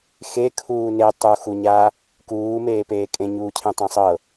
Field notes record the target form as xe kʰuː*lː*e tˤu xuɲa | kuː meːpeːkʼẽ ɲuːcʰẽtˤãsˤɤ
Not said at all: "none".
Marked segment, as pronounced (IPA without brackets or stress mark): n